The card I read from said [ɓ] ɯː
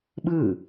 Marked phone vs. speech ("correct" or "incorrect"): correct